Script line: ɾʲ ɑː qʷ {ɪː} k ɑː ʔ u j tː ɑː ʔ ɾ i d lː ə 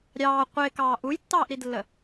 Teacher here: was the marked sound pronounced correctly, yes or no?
yes